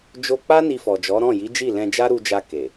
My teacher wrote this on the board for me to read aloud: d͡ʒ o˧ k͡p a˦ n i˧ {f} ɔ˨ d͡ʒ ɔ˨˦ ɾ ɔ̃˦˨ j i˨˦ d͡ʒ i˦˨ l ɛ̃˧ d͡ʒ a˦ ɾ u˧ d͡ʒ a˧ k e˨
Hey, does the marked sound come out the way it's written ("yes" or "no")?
yes